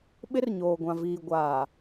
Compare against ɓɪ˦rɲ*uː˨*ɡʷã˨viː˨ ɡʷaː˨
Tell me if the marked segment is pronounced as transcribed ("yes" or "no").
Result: no